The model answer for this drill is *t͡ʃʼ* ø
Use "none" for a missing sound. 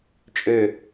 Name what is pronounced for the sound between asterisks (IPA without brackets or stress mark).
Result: t͡ʃʼ